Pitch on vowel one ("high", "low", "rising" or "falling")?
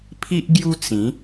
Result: high